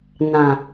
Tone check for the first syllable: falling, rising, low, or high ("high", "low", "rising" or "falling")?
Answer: low